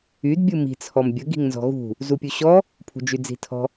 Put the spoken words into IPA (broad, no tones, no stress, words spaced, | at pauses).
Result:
yd bʲɯmi̤ t͡sʰɔmbʲə ɡi̤ŋnzɔ̤ɣṳ | zupʲuɕɔ | pʰṳd͡ʒyd͡zi̤tʰɔ̤